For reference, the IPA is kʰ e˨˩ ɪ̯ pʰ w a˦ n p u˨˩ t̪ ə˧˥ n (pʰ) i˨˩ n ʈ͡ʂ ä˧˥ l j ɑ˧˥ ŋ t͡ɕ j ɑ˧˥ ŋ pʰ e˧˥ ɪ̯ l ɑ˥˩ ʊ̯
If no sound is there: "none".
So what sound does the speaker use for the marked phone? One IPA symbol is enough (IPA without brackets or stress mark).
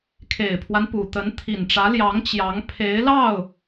t̪ʰ